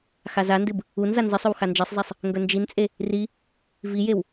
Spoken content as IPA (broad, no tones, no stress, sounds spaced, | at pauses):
x a z a n d ɨ b | u n z a n z ɨ sˤ ɵ w x a n d͡ʒ e sˤ zˤ e sˤ | ŋ ɡ ɵ n d͡ʒ i n t͡sʼ e | r i | v i j e w